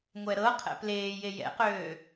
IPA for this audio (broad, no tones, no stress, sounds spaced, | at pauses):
ŋʷ ɛ ɾ ɤ qʰ ɛ̰ p l eː j e j ɛ̰ q øː